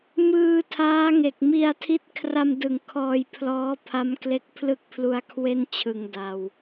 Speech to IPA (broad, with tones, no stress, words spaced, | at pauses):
mɯː˧ tʰaː˦˥ŋe˨˩k̚ mi˧a̯tʰi˦˥t̚ kʰra˧mdɯ˨˩ŋ kʰɔː˧jpʰlɔː˦˥pʰa˦˥m kle˦˥k̚pʰlɯ˥˩k̚pʰlu˧a̯kʰwe˥˩n t͡ɕʰɯ˧ŋda˧w